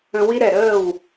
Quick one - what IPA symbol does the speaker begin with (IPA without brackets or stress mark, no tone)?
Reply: ə̃